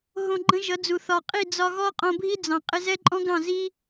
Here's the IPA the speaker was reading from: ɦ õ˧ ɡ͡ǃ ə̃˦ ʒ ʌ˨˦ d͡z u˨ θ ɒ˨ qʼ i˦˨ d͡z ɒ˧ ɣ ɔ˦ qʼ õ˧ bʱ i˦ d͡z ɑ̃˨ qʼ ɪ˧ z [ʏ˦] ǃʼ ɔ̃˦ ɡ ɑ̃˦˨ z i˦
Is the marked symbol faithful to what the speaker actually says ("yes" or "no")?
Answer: no